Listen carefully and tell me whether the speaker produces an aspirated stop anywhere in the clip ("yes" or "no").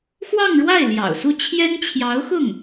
yes